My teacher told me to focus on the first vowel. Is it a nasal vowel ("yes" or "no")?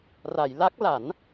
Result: no